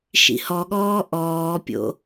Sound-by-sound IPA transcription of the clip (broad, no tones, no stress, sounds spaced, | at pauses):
ʃ ḭ h ɔ ɠ ɔː ʔ ɔː pʲ o̰